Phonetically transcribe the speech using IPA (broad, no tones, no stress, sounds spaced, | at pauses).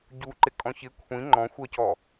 ɟ u ǃ ɪ kʼ ɔ̃ ç ɪ kʷʰ ĩ ŋ͡ǃ ɔ̃ xʷ ɜ c ɔ